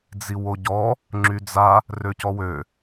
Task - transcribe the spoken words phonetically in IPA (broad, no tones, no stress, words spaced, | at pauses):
d͡ziwoɟɔ | ŋ͡ǁyd͡za | røcɔwø